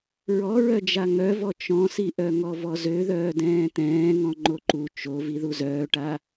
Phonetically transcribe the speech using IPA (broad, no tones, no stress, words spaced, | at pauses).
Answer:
ɹɔɹœ d͡ʒaŋœvɔ t͡ʃɔ̃siʔœ ŋɔvɔzø ðœːdɛ̃ːt̪ɛ̃ːŋɔ̃ ŋ͡ǃoǃu t͡ʃo viðuzœːʈa